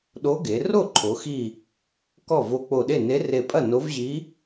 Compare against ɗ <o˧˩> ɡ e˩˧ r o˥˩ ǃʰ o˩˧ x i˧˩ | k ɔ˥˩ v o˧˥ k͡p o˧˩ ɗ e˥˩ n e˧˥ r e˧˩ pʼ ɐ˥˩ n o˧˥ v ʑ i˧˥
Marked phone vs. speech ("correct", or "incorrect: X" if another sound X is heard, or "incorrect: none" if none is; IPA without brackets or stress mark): incorrect: o˧˥